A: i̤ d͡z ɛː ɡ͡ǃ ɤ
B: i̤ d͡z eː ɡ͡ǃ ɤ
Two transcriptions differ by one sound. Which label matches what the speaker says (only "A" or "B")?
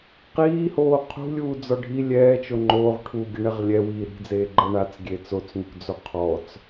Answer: B